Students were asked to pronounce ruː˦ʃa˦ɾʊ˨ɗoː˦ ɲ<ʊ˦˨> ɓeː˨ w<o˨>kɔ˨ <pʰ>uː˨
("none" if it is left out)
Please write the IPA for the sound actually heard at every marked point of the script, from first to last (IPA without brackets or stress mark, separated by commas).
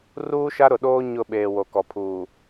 ʊ˦˨, o˨, pʰ